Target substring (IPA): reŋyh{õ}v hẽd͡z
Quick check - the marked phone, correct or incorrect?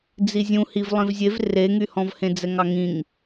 incorrect